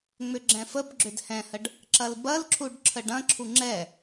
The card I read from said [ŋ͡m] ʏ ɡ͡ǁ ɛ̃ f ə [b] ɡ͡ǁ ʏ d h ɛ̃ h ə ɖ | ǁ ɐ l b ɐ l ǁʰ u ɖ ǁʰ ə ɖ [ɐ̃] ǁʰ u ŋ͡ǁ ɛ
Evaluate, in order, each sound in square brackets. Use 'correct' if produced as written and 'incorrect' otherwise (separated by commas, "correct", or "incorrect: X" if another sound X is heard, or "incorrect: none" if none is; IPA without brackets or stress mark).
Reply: correct, correct, correct